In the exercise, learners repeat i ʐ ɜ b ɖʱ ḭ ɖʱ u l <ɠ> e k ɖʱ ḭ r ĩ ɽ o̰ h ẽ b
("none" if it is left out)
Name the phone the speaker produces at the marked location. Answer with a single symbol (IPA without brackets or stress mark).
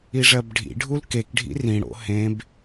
k